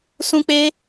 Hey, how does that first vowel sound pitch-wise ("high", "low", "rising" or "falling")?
high